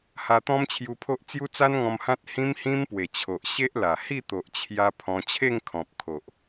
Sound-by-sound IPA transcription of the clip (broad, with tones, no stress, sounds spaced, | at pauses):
h a˧ t̪ ɔ̃˦ m t͡ɕʰ j u˧ pʰ o˦ ʔ t͡s j u˦ t͡s a˦ n ŋ ɔ̃˧ m h ã˦ t̚ h ĩ˦ m h ĩ˦ m p w e˨˩ t͡ɕʰ o˨ ʔ ɕ e˦ ʔ l a˨˩ h i˥˧ t̪ o˨ ʔ t͡ɕʰ j a˧ pʰ ɔ̃˧ t͡ɕʰ e˥˧ ŋ kʰ ɔ̃˨ p̚ kʰ o˨ ʔ